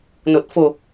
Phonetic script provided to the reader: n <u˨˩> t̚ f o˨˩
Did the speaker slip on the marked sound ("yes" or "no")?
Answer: yes